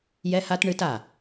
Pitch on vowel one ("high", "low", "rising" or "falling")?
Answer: high